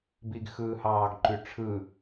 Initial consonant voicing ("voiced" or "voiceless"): voiced